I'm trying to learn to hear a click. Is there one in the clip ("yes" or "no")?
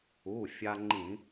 yes